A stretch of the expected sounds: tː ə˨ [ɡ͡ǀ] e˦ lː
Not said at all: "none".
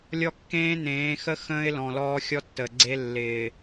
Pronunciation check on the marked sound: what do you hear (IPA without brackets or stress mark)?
ɡ͡ǀ